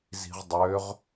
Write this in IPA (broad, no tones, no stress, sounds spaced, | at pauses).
z i̤ ʁ dˤ ø ʁ